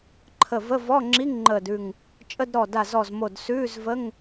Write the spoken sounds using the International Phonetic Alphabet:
ǃʰ ə˧˩ v ə˧˥˧ v ɔ˧˥˧ ŋ͡ǁ i˧˥˧ ŋ ŋ͡ǃ əː˧˩ d ʉ˧˩ ŋ | t͡ʃʼ ə˧˥˧ d ɾ ɔ˧˩ d a˧˩ z ɔ˧˩ z m o˧˩ d s ʉː˧˥˧ z v ə˧˥˧ ŋ

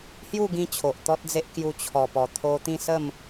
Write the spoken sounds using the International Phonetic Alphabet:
h j u˥˧ ɡ ĩ˧ t͡ɕʰ o˨ ʔ t̪ ɔ˦ t̚ d͡z e˦ ʔ k j u˧ t͡ɕʰ ɔ˨˩ p ɔ˨˩ t̪ʰ o˧ t̪ ĩ˥˧ s ə˥˧ m

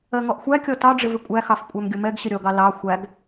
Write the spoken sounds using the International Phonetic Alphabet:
ɜ ŋ ɔ ʔ xʷ æ kʲ ɔ t ɑ ɖ͡ʐ ɪ v ɪ kʷʼ æ x ɑ f kʷʼ æ m ɡʲ ʊ m ɛ ɡ ɕ ɪ ɾʲ ɔ ɡ ɑ l ɑ xʷ æ ɡ

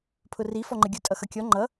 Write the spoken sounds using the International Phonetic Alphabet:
pʰ ʊ r i f ɔ ŋ͡ǃ ə ɡʲ ʊ tʼ ʌ x ʌ kʲ ɔ ŋ͡ǃ ʌ

